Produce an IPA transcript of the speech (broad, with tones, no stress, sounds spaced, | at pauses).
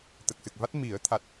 t̪ ə˨˩ k̚ s ɨ˨˩ k̚ v a˦˥ t̚ m i˨˩˦ ə̯ t̪ʰ a˦˥ t̚